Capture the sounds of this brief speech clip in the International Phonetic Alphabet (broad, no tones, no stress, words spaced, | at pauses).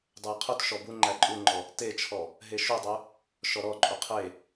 dˤejqʰutʃɔ buŋ͡ǃæ ǃʼuŋ͡ǃɔ | tet͡ʃʰɔ | ɦeʃudˤœ | ʃɔɾɔǃʼu qʰe